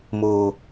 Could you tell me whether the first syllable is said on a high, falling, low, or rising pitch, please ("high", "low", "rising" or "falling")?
low